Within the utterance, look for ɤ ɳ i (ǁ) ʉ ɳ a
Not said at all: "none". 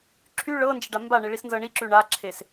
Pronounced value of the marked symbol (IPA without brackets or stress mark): ǁ